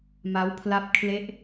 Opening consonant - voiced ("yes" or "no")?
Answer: yes